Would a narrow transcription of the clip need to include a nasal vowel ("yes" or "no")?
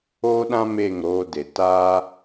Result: yes